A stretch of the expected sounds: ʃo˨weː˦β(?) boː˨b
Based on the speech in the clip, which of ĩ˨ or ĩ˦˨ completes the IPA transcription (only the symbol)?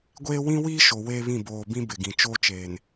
ĩ˦˨